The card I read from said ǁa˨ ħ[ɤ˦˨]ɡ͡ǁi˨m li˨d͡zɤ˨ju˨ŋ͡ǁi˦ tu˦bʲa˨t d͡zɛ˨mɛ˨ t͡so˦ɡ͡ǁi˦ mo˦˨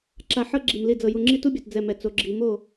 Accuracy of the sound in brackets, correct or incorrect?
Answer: incorrect